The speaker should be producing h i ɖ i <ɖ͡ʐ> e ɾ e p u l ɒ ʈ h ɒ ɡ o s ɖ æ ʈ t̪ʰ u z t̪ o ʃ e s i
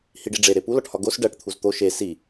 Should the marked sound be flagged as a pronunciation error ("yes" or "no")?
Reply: no